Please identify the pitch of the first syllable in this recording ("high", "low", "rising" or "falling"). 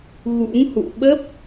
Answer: rising